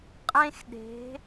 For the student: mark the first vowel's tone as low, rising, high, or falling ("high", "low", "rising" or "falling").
high